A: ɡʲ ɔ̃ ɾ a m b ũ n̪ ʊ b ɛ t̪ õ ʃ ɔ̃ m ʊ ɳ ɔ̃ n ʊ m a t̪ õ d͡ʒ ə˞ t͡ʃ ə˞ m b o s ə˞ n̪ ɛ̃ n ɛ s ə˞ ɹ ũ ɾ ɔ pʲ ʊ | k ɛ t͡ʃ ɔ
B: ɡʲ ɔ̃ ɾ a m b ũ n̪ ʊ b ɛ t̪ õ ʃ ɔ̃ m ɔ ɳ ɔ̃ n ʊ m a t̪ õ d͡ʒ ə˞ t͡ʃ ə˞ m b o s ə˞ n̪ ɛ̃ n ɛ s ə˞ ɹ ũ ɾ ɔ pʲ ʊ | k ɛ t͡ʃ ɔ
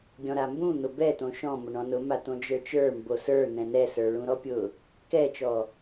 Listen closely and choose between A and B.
A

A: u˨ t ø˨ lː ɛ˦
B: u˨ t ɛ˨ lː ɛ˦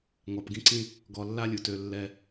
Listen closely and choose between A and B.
A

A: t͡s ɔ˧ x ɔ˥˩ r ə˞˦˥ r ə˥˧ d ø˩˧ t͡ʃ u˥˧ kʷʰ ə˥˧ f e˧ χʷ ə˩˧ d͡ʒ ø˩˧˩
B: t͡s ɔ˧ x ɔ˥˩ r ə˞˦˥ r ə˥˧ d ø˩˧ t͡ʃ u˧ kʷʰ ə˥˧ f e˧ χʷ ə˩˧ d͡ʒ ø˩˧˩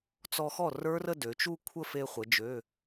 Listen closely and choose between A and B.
A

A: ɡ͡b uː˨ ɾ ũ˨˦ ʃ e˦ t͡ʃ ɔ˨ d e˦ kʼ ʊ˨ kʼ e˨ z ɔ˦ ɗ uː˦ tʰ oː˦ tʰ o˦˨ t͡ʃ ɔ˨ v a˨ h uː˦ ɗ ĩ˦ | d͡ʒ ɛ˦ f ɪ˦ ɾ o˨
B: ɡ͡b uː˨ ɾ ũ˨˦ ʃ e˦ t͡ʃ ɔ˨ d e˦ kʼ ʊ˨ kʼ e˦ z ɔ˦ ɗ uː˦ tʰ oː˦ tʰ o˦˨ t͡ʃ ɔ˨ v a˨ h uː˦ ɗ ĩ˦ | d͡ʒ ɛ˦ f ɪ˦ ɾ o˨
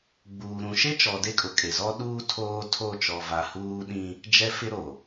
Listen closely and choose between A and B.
A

